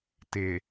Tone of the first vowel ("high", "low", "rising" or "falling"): low